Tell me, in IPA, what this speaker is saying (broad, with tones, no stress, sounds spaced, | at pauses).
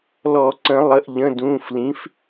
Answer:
l ɔ˨˩˦ ǀ ə̃˨˩˦ lˠ ə˩˧˩ ʔ ʎ ə̃˩˧˩ d ũː˩˧˩ f l ĩ˩˥ f